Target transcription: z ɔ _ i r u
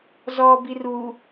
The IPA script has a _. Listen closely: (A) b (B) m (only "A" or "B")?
A